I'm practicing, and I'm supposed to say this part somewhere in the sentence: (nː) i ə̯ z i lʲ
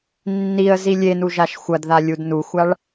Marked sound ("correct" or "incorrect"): correct